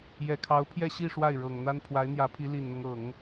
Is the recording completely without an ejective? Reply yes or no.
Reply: yes